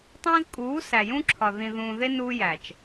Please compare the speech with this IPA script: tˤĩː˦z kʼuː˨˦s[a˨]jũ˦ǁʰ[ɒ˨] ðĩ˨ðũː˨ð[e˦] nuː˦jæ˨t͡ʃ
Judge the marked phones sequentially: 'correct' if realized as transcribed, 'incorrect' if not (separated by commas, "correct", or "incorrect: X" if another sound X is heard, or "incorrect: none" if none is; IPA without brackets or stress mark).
incorrect: æ˨, correct, correct